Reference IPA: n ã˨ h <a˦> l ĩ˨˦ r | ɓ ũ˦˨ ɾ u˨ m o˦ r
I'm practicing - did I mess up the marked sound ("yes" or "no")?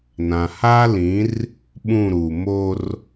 yes